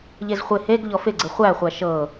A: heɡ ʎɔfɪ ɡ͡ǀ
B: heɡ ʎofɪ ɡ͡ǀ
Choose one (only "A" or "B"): A